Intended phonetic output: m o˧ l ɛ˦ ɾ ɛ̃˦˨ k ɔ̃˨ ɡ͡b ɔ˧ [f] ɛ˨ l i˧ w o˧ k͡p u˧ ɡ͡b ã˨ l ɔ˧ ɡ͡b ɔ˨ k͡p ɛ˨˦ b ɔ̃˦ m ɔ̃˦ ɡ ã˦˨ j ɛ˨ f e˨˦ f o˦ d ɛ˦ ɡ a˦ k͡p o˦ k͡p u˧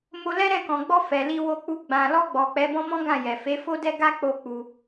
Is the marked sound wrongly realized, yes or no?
no